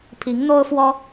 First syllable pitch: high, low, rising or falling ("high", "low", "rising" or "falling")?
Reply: rising